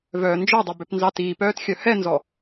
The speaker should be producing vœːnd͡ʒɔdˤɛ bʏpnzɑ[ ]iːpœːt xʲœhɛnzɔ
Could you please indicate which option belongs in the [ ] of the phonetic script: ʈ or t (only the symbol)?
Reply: t